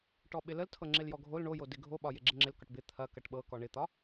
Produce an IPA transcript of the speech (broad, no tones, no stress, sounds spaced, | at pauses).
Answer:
ʈ ɔ ɓ ɪ l ə l tʰ ɤ ŋ͡ǁ ɪ l j ɔ ɡʱ o l ɳ o j o d ɪ ɡʱ o ɓ ɒ j ɪ ɡ͡ǁ ɪ ŋ͡ǁ ɪ l k ɒ ʈ b ɪ t̪ʰ ɐ k ɐ ʈ ɓ ɤ k ɔ ɳ ɪ t̪ ɒ